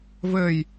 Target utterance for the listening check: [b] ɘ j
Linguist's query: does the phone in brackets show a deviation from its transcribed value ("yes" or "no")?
yes